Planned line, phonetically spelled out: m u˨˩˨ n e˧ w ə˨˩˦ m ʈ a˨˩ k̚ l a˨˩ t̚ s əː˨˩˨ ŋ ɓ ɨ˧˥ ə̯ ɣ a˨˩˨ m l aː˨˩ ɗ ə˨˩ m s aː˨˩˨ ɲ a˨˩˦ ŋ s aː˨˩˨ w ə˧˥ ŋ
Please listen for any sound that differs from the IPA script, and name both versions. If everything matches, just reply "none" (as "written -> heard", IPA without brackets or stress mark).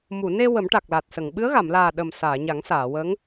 əː˨˩˨ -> ə˨˩˨